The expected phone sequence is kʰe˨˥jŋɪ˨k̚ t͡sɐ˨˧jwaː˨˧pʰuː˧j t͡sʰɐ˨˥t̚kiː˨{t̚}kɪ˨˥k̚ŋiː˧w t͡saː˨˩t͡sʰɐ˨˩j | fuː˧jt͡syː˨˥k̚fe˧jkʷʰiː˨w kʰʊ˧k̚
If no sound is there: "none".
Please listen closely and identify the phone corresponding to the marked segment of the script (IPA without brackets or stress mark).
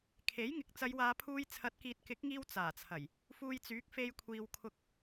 t̚